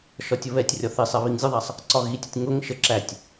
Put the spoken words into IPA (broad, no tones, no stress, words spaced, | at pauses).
ʃɒtʲəβɛtʲrʲɒ θisˤɛ βiŋzʲəðˤæsˤ | ǀɒɣitʲʊtʲ ŋʊŋʃə ǁætʲ